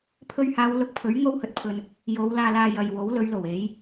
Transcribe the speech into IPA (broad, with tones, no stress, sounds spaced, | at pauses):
pʰ ɵ˧ ɥ h aː˨˧ w l ʊ˧ k̚ pʰ ɵ˨˥ ɥ ŋ o˥ w h ɵ˨ t̚ pʰ ɵ˧ n | j o˨˧ w l aː˧ l aː˧ j ɐ˨ j w o˨˥ w l ɵ˨˧ ɥ l o˨˩ w e˨˥ j